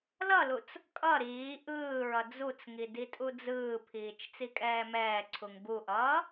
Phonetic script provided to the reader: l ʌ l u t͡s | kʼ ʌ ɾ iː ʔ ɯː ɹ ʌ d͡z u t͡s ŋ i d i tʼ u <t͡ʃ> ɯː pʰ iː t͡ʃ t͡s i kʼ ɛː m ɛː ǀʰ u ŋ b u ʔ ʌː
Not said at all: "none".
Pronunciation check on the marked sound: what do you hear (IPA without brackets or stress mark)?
d͡z